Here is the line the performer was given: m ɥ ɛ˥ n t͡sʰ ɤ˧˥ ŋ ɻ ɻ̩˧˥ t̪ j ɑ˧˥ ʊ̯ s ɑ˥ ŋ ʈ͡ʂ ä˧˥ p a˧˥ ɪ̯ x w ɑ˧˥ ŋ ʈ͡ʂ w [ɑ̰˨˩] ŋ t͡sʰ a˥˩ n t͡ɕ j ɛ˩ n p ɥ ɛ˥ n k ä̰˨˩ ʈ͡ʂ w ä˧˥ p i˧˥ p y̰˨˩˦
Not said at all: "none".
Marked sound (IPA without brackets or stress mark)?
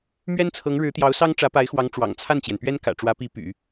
ɑ̰˨˩